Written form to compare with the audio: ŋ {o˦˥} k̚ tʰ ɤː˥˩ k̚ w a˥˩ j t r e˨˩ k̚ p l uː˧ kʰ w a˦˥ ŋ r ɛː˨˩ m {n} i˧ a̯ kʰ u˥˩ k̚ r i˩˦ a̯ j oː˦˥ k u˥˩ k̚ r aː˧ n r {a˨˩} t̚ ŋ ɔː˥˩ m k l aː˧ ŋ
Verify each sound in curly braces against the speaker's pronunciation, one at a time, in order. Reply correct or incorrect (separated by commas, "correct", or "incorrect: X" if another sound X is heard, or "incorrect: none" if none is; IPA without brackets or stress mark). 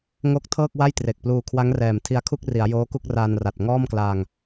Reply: correct, incorrect: tʰ, correct